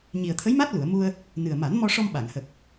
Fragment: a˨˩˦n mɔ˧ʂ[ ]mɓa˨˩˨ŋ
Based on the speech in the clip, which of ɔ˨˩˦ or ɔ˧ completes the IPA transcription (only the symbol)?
ɔ˧